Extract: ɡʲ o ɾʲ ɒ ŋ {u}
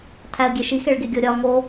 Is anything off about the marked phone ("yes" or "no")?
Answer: yes